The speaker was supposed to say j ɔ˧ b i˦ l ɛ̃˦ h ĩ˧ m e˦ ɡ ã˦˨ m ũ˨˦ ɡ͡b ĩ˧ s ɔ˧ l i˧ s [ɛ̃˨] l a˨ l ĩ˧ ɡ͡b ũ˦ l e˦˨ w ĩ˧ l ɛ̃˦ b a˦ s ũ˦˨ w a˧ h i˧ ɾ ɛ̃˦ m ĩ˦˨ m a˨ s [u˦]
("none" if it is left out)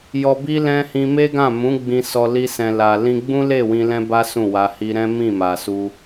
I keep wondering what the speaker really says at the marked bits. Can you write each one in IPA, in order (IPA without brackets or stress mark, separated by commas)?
ɛ̃˨, u˧